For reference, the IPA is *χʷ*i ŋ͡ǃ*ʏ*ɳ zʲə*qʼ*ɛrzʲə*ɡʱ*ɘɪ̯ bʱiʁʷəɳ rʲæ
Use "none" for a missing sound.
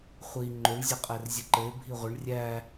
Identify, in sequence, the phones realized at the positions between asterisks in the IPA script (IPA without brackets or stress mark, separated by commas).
χʷ, ʏ, qʼ, ǃ